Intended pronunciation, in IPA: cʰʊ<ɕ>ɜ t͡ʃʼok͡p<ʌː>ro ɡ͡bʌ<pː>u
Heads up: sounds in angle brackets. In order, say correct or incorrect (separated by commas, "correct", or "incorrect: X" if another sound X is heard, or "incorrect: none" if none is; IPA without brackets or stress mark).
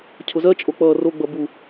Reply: incorrect: z, correct, incorrect: b